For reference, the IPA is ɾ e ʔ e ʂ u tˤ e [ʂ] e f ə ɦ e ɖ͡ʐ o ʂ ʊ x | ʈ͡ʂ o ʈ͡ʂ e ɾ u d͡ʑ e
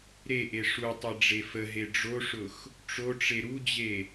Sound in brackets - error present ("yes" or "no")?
yes